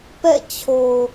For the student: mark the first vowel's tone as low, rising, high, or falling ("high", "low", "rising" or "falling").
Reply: falling